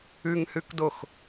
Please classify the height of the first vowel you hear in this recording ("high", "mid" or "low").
high